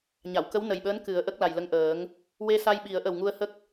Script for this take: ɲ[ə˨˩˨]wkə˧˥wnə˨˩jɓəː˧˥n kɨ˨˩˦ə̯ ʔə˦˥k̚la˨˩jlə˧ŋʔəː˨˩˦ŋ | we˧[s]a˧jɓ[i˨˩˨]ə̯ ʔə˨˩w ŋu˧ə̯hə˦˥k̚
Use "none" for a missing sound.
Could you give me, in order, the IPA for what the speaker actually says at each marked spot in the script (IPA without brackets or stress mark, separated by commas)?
a˨˩˨, s, i˨˩˦